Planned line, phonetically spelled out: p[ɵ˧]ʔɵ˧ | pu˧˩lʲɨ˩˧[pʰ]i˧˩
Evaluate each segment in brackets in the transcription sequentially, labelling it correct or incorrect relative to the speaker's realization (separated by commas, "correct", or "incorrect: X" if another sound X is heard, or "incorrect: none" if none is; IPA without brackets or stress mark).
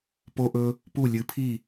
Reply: incorrect: o˧, correct